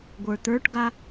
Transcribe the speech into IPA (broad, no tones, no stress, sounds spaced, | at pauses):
ɡʷ ə˞ t̪ ə˞ ʈ ɡ a